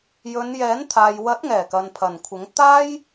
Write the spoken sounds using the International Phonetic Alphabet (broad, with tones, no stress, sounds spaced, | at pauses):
j ɵ˨˧ n j ɛː˨˥ n t̪ʰ aː˨ j w ɐ˨˥ t̚ ŋ ɛː˨˩ k ɐ˨ n pʰ ɐ˨˩ n kʷʰ ɪ˨˥ ŋ t̪ aː˥ j